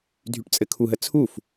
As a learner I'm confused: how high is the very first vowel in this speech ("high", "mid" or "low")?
high